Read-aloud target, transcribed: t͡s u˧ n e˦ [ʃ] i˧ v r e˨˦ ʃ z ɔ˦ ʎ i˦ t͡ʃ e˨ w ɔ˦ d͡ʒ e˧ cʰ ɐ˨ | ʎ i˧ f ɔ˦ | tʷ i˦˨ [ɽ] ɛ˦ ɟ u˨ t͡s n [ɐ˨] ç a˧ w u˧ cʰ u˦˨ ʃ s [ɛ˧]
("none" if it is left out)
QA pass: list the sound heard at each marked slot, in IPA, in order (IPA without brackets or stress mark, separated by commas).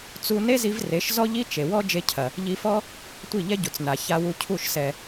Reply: z, ʎ, a˨, ɛ˨